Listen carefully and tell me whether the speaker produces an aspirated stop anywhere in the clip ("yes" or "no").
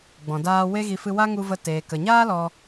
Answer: no